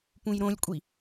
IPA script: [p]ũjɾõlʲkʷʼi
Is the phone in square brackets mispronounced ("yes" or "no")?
no